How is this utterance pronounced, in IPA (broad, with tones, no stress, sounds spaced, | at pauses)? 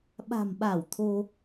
ɓ a̤˨˩ m ɓ a˧˩ w t̪ʰ o˧